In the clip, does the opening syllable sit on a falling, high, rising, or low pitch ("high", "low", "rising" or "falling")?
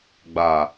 low